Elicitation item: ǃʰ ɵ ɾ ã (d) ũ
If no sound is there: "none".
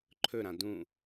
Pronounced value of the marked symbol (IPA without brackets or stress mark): d